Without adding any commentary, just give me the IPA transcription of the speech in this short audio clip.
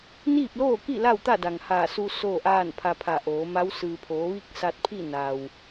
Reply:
n iː˥˨ p̚ l oː˥˨ k i˥˨ l a˥˨ w t̪ a˥˨ d a˩ ŋ h aː˧˩ s u˧ s oː˥˨ ʔ aː˥˨ n pʰ a˧ pʰ a˧˩ ʔ oː˩˧ m a˧˥ w s ɯː˩ pʰ oː˩˧ ʋ i˥˨ k̚ s a˧ t̚ pʰ i˥˨ n a˩ w

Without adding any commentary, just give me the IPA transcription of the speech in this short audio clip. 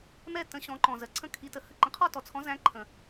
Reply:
m ɛ˥˧ t ə̃˨˥ ɕ ɔ̃˨˥ ǃ ɔ̃˨ z ɜ˨ ǀʰ ə̃˥˩ kʰ i˨˥ t ə˨ h ə˥˩ ǃ ə̃˨˥ qʰ ɔ˥˧ t ɔ˨ t͡sʰ ɔ̃˨˥ z æ̃˨˥ ǃʰ ə̃˨

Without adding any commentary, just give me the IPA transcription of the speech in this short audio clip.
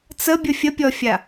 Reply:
t͡s ə bʲ ə fʲ ə pʲ ɔ fʲ a

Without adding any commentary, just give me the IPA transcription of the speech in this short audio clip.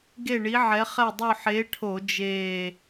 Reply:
ɡ e˥˨ ɳ i˨˥ ʕ ɛ˨˥ χ ɛ˥˨ dˤ o˥˨ ħ e˨˥ ʈʰ o˧˩˧ d͡ʒ eː˧˩

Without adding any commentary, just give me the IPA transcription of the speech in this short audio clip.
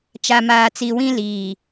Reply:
t͡ʃ a˨ m aː˨ t͡s i˨ w ĩ˦ l iː˨

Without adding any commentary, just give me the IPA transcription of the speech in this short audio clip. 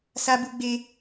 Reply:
s a˦ b u˦ ɡ͡b e˦

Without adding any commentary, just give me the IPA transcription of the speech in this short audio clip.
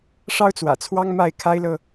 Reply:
ʂ ɑ˥ ʊ̯ t͡s w ä̰˨˩ t͡sʰ w ɑ˥ ŋ m a˥˩ ɪ̯ kʰ a˥ ɪ̯ l ɤ˨

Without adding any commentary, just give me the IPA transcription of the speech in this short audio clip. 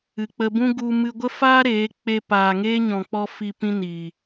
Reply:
ɨ˨ k͡p ə˧ b ũ˦ ɡ u˧ m ɨ˧ ɡʷ ə˦ f aː˦ ɾ eː˨˦ k͡p e˧ p aː˨ ŋ eː˦ ɲ ɔ̃˨ k͡p ɔ˧ f i˧ p ĩ˦ n i˨

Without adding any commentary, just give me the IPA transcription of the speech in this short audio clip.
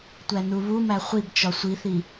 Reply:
tʷ æ n u β u m æ χʷ i b t͡ʃ ɒ sʷ i θ i

